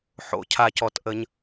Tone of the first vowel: low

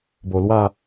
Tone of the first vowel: low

